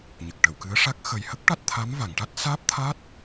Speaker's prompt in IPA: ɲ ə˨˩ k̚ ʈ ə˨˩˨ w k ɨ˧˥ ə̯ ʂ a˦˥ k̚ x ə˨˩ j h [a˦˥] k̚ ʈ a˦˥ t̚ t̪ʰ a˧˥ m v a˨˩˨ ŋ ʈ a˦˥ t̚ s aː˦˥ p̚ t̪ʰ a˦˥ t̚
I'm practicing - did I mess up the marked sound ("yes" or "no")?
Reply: yes